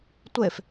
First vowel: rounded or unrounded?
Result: unrounded